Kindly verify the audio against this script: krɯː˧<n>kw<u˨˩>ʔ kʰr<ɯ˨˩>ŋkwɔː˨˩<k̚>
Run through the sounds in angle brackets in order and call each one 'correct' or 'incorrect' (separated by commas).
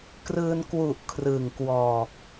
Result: correct, correct, correct, correct